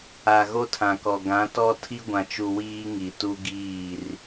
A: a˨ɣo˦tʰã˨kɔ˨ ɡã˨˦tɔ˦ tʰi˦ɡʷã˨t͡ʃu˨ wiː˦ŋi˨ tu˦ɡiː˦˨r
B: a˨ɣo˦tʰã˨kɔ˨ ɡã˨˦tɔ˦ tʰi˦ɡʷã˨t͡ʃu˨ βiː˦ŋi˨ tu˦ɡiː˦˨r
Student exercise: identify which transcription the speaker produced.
A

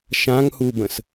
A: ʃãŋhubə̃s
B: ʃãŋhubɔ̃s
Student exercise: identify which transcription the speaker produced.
A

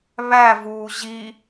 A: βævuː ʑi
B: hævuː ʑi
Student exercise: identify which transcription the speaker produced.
A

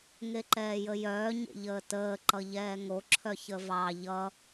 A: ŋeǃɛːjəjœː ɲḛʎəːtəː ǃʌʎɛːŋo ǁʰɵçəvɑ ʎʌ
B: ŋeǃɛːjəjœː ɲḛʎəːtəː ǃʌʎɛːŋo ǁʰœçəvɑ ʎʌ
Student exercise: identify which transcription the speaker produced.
B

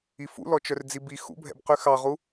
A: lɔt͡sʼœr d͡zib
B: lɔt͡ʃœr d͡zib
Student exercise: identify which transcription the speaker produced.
B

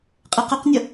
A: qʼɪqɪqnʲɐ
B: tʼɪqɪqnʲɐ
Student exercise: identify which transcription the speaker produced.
A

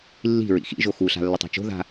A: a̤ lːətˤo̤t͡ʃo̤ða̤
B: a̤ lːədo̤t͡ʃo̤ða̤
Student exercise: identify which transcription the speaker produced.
A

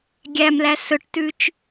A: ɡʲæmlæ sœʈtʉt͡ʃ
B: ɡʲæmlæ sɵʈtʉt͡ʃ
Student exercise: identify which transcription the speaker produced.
B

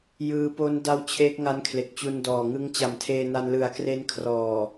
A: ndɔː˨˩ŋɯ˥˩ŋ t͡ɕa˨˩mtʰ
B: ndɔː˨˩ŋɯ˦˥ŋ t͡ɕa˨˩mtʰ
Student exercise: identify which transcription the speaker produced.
B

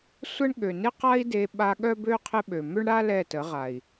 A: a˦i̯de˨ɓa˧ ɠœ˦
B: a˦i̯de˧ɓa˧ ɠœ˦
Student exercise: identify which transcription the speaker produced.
B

